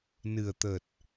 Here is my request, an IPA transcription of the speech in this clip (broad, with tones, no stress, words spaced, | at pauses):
nɨ˨˩ə̯t̪ə˨˩t̚